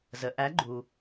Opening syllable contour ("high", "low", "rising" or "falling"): low